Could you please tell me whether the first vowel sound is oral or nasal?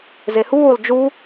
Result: oral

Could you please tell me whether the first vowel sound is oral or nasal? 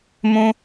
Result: nasal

